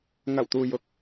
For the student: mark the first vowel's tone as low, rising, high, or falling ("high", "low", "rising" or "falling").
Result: low